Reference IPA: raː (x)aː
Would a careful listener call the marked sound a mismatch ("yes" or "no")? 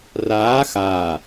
no